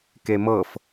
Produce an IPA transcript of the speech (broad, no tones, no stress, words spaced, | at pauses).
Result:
kemɤf